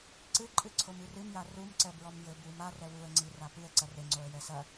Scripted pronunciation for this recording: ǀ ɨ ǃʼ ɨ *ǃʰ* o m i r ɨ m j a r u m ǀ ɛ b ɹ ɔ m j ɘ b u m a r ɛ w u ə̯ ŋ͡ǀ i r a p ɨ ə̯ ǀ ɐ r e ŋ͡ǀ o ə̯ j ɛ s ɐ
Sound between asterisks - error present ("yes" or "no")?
yes